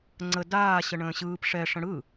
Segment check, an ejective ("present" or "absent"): absent